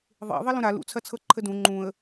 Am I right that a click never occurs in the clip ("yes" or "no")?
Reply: no